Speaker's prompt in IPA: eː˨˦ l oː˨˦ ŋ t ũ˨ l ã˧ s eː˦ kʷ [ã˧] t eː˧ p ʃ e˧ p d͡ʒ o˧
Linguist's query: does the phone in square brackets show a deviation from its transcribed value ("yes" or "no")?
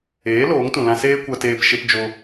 yes